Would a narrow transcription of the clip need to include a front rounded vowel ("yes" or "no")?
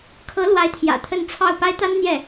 no